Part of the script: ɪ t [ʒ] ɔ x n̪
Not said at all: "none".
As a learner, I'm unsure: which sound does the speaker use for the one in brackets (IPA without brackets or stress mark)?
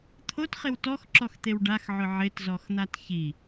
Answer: z